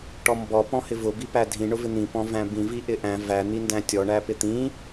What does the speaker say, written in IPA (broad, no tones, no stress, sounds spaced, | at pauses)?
ʈ ɔ m b ɔ p ɔ̃ h ɪ v ʊ b i p æ dʱ ĩ ɳ ʊ v ɪ n̪ ĩ p ɔ̃ v æ̃ b ĩ v i ʔ ɪ ʔ æ̃ v æ n̪ i n d æ̃ tʲ ɔ ɳ æ p ɪ t̪ ĩ